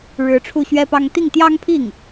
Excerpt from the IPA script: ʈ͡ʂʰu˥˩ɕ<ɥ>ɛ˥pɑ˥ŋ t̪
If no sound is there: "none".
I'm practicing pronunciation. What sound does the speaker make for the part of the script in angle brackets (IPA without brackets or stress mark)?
ɥ